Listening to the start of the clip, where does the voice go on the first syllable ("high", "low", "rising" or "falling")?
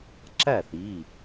falling